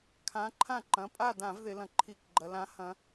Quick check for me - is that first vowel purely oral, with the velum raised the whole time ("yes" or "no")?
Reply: no